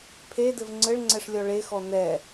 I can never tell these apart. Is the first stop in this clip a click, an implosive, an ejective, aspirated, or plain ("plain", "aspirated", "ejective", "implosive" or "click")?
aspirated